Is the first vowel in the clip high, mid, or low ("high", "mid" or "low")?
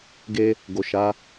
mid